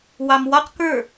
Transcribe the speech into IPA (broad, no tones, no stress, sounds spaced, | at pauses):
w ɑ m w ɔ q k ə˞